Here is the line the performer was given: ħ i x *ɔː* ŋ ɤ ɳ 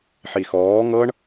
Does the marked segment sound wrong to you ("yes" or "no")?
no